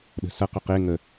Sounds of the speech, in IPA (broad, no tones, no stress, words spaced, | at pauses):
ɗə̤sɐ qʊqe ŋə